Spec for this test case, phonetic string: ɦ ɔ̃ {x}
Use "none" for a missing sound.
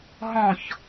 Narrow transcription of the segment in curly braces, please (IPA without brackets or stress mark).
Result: ç